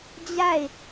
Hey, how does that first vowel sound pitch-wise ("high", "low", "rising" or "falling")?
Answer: falling